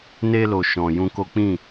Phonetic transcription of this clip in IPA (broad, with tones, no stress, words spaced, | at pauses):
ne˧lo˨ ʃɔ̃˨jũ˧ ko˦ k͡pĩ˦˨